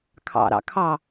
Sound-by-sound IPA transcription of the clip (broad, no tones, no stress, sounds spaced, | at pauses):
kʰ ɑ̰ ɾ ɑ̰ kʰ ɑ